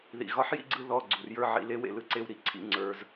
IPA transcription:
ðḭ˩ɣɒ˨˥ħjḭ˥˨ɡ͡ǀɯ˧ ðɔ˩˧˩ɡ͡ǀu˩rjə˞˥˨ ʕḭ˩˧˩le˨˥wḛ˩ lɯ˥˨ǀe˥˨w ɾi˥˨ǀʰḭ˨˩˦ ŋ͡ǀə˞˩˧˩z

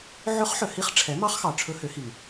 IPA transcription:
ʕɵ˧˥χħœ˩hi˧˥χ ʈ͡ʂʰɛ˩˥mɑ˧˥χxɑ˩ ʈ͡ʂʰɵ˧˥hø˩˥hi˩ŋ

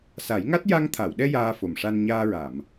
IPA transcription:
sa˨˩˦jŋa˦˥t̚ ja˧ŋt̪ʰa˨˩˨wɗɛ˧ jaː˧fo˨˩mʂa˧n ɲaː˧ɹa˨˩˨m

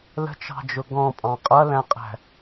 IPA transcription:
lə̤t͡ʃɑ̤d͡ʒʊ ɡɔ̃pʼɑ̃ qʼʌlæ̃qʼæ̤

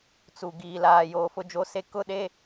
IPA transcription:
t͡su˨ ɡiː˨laː˨joː˨ fʊ˦d͡ʒo˦se˦ kʊ˦ɗe˦

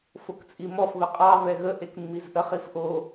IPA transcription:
fokt͡sʼimɔf βəqʼɑ vɛɣə ʔekmːizʔəχ ifʔo

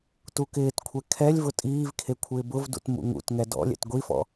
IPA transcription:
tukɪːtkʷʰɛ kʰɛlʲvʊ tʼiːvkʰe kʷʰɪːbʊvdṵt mṵŋṵtŋɛ dɔ̰lʲɛ̰t ɡʷifɔ̰

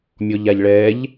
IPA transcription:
mʲɔʎaʎɭɛːʎ

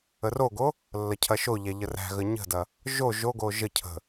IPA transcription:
əroɡo | lːɐcʰɐʃoʎæ ʎəræ̤ɣə ɲə̤dɐ | ʒo ʒoɡo ʒəcʰə̤

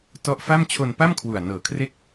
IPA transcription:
tɔ˦˥ʔfa˥˩m t͡ɕʰo˧npa˥˩mkʰwu˨˩a̯ nɤː˨˩kʰre˥˩k̚

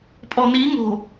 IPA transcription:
pʼɔni ŋo̤

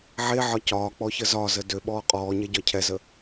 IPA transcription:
ʕeʕɒ cɒːk͡pɔçə zɒzə døɓɔː qʼɔːɲɛɟɒ cʰɛzə

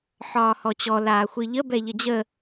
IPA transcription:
ħɒːhɔt͡ɕɔ laːxʷɨʎə bɛʎəd͡ʑə

